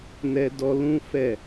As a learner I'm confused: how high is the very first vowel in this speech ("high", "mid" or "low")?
mid